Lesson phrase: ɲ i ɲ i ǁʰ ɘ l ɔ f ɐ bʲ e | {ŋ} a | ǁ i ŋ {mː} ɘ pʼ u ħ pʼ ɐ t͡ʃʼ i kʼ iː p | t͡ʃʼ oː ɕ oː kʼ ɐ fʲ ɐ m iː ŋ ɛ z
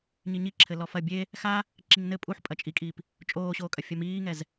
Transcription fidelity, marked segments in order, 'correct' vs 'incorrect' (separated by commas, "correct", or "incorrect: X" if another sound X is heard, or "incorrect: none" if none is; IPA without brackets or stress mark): incorrect: x, incorrect: n